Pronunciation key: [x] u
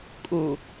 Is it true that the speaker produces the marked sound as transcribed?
no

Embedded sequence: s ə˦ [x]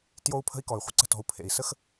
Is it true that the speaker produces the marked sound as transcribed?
yes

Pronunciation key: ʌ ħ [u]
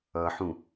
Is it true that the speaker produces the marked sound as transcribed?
no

